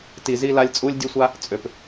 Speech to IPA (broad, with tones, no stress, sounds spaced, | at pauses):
t i˨ z i˧ l a˧ lʲ t͡sʼ u˦ lʲ dʲ ø˦ sʷ a˦ | t͡sʼ ø˨ p